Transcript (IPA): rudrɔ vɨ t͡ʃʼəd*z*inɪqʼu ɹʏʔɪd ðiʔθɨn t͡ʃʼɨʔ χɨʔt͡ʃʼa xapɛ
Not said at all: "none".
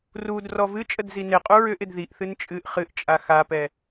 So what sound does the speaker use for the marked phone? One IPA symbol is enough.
z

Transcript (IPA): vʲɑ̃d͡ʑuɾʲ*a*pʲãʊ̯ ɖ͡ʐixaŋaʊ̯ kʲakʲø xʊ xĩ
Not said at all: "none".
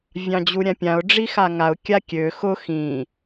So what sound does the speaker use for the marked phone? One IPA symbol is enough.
ã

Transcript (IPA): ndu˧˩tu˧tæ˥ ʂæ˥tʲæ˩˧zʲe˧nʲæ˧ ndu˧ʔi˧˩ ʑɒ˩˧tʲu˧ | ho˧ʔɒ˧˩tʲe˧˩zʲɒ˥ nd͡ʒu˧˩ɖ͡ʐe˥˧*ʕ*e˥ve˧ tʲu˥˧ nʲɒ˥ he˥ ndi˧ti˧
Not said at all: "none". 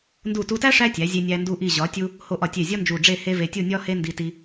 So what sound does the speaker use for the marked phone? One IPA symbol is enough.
h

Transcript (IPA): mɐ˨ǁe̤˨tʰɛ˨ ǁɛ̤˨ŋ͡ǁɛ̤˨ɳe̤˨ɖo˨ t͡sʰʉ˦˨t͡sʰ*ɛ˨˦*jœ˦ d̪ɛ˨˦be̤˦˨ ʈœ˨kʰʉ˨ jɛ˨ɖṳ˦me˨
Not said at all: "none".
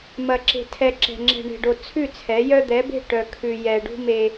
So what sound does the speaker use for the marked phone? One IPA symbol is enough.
ɛ˨˦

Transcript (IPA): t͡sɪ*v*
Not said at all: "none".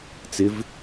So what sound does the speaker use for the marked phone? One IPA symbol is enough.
v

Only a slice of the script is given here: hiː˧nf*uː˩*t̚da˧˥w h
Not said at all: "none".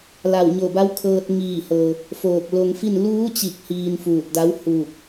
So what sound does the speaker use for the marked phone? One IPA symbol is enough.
uː˧˩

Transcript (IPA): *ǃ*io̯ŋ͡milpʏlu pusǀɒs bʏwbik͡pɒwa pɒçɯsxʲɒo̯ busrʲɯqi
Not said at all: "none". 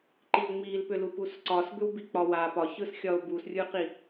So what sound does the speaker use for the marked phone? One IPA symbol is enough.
ǃ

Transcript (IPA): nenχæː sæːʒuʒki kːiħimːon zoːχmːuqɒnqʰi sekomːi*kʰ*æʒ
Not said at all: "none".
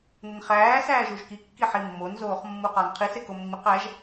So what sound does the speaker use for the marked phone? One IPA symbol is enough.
q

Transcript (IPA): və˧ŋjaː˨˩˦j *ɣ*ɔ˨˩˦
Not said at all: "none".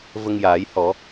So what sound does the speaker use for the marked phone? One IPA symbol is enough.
h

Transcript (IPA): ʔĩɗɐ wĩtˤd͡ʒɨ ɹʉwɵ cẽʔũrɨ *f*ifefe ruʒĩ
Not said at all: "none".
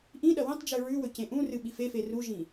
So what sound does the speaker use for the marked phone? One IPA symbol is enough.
ɓ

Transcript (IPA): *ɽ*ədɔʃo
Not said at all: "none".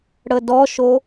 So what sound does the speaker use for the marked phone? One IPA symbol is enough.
ɽ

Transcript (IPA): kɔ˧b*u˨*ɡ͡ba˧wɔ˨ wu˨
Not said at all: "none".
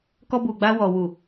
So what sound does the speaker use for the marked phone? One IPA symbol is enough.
u˨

